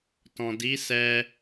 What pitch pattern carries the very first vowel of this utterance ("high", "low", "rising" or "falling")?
low